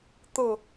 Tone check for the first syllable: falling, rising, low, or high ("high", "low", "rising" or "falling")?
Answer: falling